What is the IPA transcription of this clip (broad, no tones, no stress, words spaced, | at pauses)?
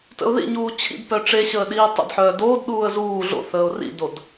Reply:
tə̰ʊ̯ðḭɲuː t͡ɕʰḭd pœʈ͡ʂeɕəː ɗiːtˤə̰dħœː doːdɗuːə̯ zuː ɮo̰θəːʊ̯ rḭdod